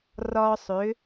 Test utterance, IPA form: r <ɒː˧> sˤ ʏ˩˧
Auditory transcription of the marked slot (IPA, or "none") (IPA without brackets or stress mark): ɒː˧